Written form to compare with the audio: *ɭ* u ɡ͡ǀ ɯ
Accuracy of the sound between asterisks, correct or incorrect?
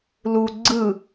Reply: incorrect